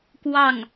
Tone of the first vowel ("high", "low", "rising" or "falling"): falling